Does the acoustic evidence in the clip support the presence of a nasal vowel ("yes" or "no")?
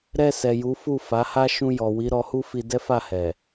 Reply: yes